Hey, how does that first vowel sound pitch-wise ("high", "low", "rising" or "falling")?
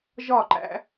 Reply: falling